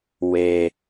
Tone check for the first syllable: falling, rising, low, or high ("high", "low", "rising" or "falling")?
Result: low